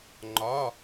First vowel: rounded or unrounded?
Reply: rounded